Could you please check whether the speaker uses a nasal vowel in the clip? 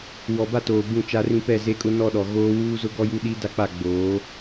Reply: yes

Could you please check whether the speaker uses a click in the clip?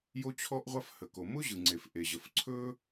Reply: yes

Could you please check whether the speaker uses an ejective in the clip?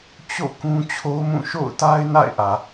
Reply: no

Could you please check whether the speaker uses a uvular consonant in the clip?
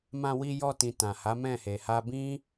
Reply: no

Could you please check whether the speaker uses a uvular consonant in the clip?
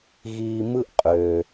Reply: yes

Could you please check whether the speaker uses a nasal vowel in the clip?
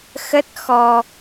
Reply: no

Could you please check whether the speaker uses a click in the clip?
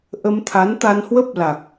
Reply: no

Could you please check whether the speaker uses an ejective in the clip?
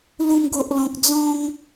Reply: no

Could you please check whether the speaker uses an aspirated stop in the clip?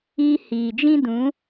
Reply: no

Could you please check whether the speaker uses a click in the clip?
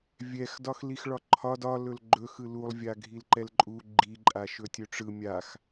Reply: yes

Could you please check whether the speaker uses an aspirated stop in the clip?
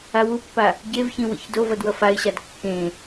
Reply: no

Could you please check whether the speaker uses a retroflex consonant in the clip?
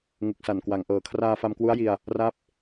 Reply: no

